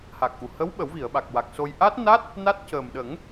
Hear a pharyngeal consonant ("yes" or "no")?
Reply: no